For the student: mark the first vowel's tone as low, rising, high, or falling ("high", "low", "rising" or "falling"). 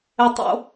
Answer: low